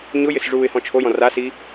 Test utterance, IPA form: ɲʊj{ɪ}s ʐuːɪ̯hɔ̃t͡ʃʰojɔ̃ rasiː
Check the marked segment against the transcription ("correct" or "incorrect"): correct